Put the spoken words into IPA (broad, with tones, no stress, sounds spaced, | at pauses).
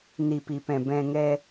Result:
n i˩ p i˩ p ɛ̃˩ b ɛ̃˩ ŋ ɛ˩